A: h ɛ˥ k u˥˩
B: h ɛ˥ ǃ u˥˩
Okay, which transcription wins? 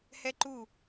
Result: B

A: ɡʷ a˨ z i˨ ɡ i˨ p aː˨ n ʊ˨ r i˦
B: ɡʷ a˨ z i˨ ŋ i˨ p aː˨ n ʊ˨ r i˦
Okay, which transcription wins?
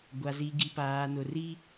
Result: A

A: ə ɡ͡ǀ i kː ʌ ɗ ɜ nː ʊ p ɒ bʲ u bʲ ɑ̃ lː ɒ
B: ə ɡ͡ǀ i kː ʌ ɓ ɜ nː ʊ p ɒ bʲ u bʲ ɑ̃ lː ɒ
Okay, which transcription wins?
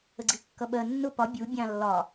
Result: B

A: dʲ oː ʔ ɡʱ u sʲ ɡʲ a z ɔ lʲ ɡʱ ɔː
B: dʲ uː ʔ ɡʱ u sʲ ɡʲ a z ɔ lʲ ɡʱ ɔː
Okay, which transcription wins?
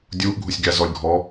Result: B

